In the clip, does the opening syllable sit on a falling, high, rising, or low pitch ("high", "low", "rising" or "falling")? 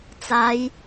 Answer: rising